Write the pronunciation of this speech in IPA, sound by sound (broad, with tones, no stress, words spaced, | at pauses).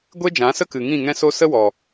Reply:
ɡʷe˦d͡ʒã˨˦sə˦ kɨ˨ŋĩ˦˨ŋɛ̃˦so˦ sə˦wɔ˨